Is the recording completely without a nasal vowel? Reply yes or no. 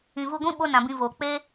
no